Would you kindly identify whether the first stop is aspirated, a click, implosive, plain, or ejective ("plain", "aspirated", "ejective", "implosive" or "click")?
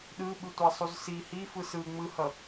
implosive